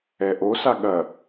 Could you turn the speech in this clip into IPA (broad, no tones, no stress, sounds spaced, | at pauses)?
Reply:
ɛ ʔ o s a ɠ ɐ